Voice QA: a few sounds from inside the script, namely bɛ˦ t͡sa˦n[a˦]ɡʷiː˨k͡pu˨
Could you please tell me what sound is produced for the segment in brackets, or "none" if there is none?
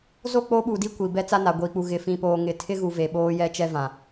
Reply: a˨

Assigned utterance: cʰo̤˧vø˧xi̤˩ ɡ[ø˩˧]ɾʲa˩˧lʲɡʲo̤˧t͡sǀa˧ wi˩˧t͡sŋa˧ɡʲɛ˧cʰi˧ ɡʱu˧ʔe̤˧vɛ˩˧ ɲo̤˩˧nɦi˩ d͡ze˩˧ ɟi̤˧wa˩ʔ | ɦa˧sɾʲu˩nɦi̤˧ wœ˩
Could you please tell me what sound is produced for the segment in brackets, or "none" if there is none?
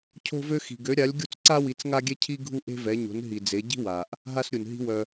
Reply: ø˩˧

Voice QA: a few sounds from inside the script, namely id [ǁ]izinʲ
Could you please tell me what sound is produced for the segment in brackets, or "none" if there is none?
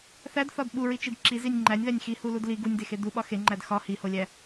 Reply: ǁ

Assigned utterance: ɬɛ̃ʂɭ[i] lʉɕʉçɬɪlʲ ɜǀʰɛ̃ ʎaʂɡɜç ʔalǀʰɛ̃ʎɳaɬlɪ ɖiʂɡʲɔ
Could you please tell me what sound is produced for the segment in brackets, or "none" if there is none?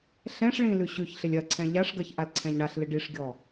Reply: ĩ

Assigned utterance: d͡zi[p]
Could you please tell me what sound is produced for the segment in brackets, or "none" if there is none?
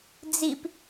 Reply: p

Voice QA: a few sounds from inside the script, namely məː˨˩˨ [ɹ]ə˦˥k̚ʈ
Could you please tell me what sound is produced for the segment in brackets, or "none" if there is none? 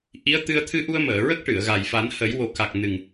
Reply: ɹ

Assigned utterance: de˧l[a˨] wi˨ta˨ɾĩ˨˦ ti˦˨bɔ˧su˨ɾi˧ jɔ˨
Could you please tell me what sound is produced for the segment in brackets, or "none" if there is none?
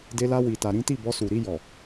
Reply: a˧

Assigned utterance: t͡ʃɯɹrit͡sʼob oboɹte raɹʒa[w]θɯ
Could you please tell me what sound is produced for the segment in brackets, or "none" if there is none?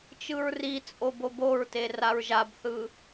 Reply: b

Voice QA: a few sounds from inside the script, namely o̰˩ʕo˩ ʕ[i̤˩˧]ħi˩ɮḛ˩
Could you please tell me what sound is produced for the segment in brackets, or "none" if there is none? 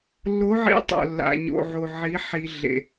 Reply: i˩˧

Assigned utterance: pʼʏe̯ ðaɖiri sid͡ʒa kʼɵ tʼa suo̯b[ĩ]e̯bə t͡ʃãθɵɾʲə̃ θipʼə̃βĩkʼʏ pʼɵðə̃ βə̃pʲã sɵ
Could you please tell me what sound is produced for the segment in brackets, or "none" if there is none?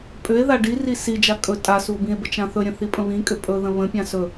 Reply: ĩ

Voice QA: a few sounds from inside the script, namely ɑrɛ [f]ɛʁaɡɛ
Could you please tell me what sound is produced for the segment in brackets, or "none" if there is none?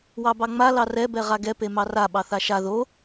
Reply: b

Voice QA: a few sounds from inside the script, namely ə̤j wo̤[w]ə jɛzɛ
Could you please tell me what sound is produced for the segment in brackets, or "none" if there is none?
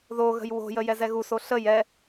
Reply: j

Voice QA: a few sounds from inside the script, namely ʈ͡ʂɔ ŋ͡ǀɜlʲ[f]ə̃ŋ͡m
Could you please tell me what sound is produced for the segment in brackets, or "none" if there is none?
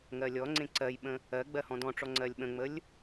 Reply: ɓ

